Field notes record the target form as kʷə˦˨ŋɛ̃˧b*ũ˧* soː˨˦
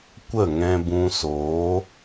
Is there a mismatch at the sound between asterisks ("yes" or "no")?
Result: no